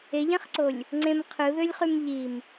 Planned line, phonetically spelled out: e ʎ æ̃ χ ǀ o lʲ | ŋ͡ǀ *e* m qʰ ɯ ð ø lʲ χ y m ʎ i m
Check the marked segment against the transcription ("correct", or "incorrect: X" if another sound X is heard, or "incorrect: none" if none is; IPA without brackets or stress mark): incorrect: ẽ